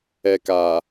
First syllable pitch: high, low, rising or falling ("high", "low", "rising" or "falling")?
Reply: low